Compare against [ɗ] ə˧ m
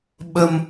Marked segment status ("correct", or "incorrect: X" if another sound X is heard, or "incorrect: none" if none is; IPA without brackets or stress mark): incorrect: ɓ